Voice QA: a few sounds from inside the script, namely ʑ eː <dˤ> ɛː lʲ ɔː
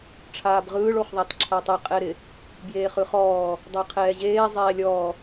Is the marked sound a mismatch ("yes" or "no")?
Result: yes